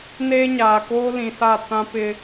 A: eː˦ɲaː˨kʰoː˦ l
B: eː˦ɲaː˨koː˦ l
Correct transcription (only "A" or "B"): B